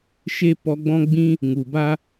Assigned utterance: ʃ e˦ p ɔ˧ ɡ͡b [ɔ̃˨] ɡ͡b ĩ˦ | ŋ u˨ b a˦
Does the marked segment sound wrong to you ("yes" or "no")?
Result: yes